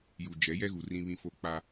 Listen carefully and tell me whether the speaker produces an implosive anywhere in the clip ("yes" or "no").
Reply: no